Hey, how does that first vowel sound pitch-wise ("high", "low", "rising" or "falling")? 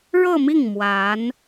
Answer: falling